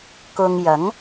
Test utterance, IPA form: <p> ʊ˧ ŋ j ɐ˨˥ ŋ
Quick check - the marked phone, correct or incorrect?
incorrect